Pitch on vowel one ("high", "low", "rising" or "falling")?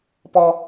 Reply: high